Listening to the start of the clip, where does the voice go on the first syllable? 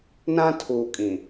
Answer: high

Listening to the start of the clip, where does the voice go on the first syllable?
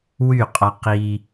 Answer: falling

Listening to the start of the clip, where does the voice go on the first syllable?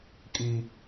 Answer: low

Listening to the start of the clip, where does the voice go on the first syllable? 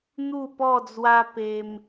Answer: falling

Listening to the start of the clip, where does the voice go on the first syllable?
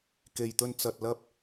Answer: low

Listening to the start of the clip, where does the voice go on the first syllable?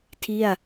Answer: falling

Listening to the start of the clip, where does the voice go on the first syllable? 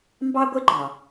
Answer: high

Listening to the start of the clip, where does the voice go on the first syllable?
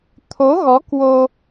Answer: rising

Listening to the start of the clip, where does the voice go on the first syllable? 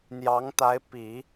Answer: rising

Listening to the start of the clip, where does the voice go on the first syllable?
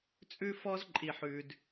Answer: high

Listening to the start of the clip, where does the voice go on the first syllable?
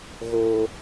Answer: high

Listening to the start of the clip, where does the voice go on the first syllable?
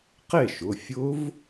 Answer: falling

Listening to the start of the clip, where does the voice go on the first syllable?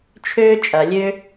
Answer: high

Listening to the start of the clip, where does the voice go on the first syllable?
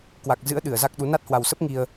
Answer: low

